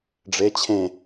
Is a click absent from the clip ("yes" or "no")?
yes